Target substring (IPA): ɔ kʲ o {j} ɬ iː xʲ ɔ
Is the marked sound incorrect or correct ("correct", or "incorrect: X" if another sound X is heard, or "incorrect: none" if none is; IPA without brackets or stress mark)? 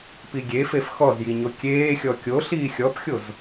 incorrect: none